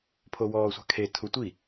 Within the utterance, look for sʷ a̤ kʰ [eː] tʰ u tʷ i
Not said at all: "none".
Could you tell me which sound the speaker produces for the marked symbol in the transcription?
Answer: e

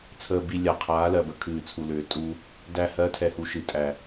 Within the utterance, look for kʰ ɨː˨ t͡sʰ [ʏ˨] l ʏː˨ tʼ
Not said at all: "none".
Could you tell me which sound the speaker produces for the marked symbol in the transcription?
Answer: u˨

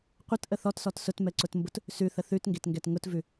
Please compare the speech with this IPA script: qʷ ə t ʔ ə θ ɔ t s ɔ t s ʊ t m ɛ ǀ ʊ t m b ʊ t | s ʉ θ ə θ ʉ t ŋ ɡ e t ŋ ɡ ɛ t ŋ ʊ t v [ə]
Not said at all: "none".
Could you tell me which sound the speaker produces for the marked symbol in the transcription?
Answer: ʉ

